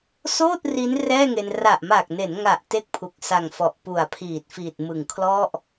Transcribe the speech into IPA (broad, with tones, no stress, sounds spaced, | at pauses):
s oː˥˩ t̚ r i˦˥ n r ɛː˥˩ ŋ e˧ n r a˨˩ ʔ m aː˨˩ k̚ n e˩˦ n ŋ a˨˩ ʔ t e˥˩ k̚ pʰ u˨˩ k̚ s a˨˩ ŋ f ɔ˨˩ ʔ p u˨˩ a̯ pʰ iː˨˩ t̚ f iː˨˩ t̚ m ɯ˨˩ ŋ kʰ l ɔ˥˩ ʔ